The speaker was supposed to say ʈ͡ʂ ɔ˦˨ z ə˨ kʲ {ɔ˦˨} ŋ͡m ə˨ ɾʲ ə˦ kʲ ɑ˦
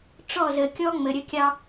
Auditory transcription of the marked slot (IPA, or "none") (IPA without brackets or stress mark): ɔ˦